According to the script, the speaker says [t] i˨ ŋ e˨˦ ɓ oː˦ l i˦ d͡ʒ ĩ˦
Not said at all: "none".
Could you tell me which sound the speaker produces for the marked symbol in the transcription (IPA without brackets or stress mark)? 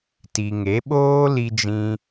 t